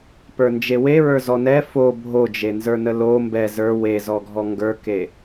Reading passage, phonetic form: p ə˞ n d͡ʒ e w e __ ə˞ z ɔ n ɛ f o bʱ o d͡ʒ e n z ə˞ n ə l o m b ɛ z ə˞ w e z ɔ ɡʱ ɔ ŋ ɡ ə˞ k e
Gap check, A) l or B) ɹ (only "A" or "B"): B